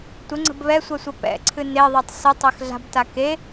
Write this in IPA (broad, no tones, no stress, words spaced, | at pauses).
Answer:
tʷəŋ͡ǀə̤b βɛsʷɜsʷə pɛ̰ǀʰɨ neðˤɜtˤ sʊtˤex ɮa̤bta ke